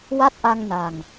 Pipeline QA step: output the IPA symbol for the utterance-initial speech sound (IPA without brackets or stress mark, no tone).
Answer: w